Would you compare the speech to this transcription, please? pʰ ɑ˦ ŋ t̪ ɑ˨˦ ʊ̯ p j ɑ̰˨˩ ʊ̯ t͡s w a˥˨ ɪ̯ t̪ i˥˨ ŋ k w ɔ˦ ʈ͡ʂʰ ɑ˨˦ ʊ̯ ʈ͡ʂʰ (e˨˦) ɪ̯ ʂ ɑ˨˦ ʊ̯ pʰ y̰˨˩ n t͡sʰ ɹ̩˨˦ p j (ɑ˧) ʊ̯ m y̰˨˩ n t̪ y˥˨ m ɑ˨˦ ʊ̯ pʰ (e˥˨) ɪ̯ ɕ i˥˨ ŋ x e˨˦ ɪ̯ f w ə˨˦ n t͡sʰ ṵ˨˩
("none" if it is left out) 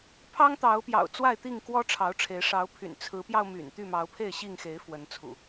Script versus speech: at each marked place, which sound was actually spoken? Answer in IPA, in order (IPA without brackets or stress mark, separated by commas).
e˨˦, ɑ˧, e˥˨